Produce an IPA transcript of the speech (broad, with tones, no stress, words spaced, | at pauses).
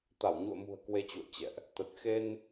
t̪a˧˩wɲṵ˧˨ə̯mṳ˨˩ə̯ kwe˧t͡ɕṵ˧˨ə̯ t͡ɕɛ̰˧˨ʔ | t̪ə˨˩t̚xe˧n